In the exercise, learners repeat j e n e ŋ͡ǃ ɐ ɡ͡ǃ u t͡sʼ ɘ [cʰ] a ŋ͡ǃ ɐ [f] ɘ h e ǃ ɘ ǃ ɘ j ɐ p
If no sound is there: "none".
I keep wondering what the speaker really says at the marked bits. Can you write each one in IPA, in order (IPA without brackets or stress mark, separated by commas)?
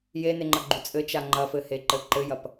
t͡ʃ, f